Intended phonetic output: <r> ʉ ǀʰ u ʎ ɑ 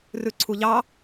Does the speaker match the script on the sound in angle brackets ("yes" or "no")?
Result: yes